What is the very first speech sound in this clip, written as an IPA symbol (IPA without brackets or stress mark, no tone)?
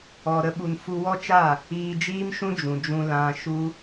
ɔ